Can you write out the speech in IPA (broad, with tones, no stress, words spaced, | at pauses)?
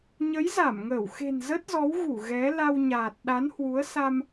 ɲə˨˦jza˧˩mŋəː˧˩w xe̤˨˩nzə˦˥t̚zɔ˨˦wɣu˧˩ ɣɛ˨˦ la˧wɲaː˨˩t̚ ɗa˨˦nhwu˨˦ə̯ sa˧m